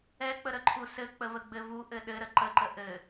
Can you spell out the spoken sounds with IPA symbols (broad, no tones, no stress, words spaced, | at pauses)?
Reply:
ɛk͡pəɾəǃʰu sɘk͡pəvəɡ͡bɘ vuʔɘ ɗɘɾə ǃəǃə ʔɘ